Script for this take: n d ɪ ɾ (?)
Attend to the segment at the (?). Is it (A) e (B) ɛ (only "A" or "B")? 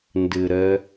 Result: B